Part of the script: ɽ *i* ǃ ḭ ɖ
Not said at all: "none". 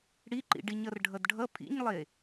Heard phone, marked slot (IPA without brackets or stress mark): i